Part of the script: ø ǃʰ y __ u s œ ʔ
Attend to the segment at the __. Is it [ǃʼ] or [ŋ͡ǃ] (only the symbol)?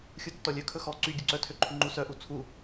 ŋ͡ǃ